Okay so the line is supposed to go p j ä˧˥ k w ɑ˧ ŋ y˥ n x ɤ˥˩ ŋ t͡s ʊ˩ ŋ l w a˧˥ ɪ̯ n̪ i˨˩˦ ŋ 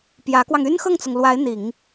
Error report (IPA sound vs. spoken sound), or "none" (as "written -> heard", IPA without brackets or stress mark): none